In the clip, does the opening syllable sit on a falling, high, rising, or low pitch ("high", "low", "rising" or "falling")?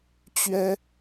high